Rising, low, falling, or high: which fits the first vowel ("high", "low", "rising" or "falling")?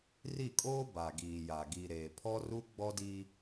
falling